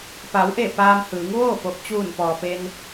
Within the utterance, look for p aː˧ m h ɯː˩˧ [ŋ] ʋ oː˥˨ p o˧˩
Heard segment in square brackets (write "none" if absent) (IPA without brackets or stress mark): ŋ